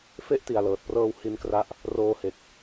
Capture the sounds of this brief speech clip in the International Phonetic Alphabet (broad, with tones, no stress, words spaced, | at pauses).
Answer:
fe˦˥ʔ ti˨˩a̯lɤː˨˩t̚prɤː˧w hi˧nkra˦˥ʔ | roː˧he˨˩k̚